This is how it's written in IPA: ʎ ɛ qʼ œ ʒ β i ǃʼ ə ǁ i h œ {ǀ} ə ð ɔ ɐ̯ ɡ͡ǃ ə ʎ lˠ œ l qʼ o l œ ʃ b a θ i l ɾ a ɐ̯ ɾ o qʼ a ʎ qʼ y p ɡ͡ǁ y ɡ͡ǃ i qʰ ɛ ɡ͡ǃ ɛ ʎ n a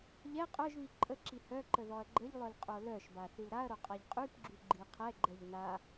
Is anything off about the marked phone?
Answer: yes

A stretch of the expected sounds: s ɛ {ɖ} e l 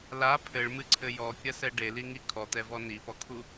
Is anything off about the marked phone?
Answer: no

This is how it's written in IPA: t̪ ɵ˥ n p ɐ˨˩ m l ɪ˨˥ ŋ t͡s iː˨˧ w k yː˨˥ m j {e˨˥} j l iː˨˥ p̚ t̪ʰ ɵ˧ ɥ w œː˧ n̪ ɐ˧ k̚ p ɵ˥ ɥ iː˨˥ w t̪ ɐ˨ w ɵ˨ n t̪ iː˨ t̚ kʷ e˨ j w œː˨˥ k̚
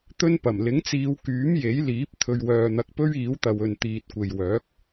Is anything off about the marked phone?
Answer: no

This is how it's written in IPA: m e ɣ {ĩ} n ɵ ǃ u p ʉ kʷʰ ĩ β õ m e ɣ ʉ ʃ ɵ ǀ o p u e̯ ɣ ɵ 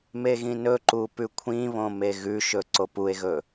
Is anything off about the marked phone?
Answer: no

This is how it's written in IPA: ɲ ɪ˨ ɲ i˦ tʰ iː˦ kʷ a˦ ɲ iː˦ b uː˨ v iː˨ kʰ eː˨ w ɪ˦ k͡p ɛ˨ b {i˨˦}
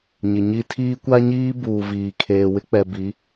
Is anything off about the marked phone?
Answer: no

